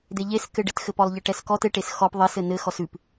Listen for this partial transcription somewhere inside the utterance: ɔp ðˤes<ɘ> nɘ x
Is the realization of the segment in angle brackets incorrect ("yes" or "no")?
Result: no